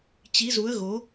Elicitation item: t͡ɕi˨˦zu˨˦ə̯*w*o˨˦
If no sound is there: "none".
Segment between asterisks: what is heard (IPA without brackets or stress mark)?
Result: ɣ